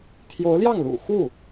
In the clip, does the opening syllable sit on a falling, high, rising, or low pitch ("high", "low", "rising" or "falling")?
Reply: rising